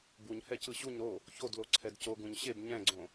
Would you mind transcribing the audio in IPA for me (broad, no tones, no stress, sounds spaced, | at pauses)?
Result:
b u ɲ h ɛ c ɯ ɕ u ɲ ɾ o | ç o d l o ǀʰ ɛ d c o ɡ ũ ɲ ɕ e b ɲ ɛ̃ ɡ͡ǀ õ